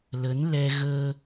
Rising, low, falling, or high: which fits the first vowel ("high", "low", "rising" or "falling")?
rising